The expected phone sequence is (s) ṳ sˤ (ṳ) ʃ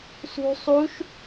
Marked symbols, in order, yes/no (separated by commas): yes, no